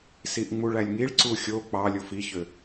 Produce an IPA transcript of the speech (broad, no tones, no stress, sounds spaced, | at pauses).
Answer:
s i ʔ ŋ͡m u ɭ æ lʲ ŋ i ɭ ǀ u xʲ o k͡p ɑ lʲ o f i ç ø